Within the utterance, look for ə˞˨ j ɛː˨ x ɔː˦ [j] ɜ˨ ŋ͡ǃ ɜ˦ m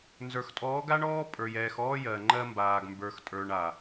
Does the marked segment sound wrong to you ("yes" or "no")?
no